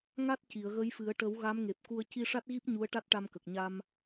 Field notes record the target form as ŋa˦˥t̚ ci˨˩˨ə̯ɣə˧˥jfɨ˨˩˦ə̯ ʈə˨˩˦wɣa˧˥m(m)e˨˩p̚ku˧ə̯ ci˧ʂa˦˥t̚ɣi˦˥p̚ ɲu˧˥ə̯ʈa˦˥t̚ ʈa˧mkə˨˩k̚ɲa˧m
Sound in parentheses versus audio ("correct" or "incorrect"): incorrect